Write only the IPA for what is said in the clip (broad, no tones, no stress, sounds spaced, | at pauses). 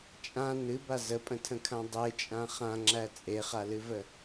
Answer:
t͡ʃʼ ã n ɨ b a z ə pʼ ə̃ tʰ ə̃ kʰ ã dˤ e t͡ʃʼ ã χ ã ŋ͡ǁ æ t͡sʼ e χ a l ɨ v ə